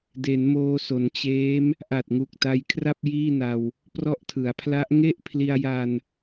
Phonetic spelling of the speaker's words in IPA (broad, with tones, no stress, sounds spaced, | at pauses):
d e˩˦ n m oː˧ s o˩˦ n t͡ɕ eː˦˥ m | ʔ a˨˩ t̚ ŋ u˨˩ k̚ t a˧ j kʰ r a˥˩ p̚ j iː˥˩ n a˧ w | p r ɔ˥˩ ʔ tʰ ɯ˩˦ a̯ pʰ l a˦˥ ʔ ŋ e˥˩ ʔ pʰ l i˧ a̯ j a˧ n